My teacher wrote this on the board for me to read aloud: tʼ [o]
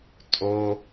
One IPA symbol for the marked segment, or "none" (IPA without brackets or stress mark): o